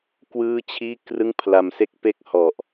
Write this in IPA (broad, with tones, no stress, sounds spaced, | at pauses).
k w ɯː˥˩ t͡ɕʰ iː˥˩ k r ɯ˥˩ ŋ pʰ l a˧ m s e˦˥ k̚ p e˥˩ k̚ h ɔ˨˩ ʔ